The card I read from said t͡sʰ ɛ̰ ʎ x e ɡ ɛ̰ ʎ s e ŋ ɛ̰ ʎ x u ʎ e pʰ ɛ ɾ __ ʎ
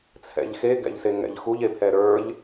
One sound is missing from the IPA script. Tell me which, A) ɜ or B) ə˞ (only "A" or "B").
B